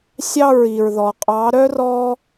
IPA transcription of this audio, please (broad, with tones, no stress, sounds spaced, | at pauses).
sʲ ɑ˦˨ ɹ i˨ ɹ ð ɔ˨ qʼ ɑ˨˦ ɾ œ˦ r ɔ˦